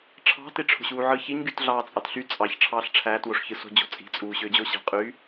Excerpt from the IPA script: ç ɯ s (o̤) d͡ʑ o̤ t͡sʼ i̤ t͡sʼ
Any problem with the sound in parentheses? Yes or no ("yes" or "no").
no